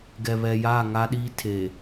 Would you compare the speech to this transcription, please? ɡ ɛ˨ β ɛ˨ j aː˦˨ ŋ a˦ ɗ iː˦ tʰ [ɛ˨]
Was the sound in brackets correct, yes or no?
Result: no